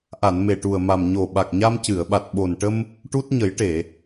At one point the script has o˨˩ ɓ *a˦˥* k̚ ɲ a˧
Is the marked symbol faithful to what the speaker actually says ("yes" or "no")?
no